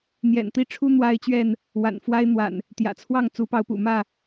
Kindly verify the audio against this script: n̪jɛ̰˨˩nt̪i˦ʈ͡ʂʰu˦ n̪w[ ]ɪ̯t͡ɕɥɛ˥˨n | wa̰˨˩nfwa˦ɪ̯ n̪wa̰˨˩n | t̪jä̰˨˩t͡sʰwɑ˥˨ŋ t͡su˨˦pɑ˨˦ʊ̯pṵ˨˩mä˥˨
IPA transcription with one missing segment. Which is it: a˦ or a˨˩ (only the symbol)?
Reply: a˦